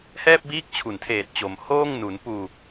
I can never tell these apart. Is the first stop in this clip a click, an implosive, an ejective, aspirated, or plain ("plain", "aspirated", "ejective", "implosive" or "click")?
plain